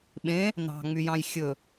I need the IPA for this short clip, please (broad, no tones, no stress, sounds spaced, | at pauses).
ɓ ẽ | n ɑ̤ ŋ͡m y j ɑ̃ j xʲ ɵ